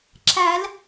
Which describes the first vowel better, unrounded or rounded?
unrounded